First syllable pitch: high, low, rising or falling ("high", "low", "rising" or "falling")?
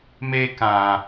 high